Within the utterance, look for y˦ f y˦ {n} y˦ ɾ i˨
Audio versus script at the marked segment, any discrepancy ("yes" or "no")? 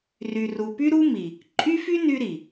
no